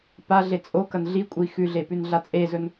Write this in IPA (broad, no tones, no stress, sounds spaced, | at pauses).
p a ɮ e t͡sʼ o k ɐ n ɮ i kʷʼ i x ʉ ɮ e p ʉ n ɮ a t͡sʼ e z ɵ n